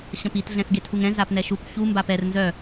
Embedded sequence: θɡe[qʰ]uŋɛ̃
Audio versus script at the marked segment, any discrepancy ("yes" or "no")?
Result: yes